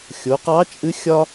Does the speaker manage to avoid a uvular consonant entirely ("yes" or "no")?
no